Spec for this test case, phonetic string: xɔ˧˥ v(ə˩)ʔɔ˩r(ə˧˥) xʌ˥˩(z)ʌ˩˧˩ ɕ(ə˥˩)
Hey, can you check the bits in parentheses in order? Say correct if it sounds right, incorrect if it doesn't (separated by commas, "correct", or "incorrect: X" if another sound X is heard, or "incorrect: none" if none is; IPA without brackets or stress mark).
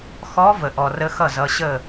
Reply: correct, correct, correct, correct